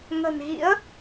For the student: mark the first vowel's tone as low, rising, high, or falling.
low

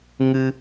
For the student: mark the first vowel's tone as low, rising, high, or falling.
high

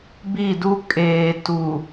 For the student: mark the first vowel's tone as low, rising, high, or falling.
falling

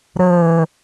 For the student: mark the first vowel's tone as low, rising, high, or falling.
low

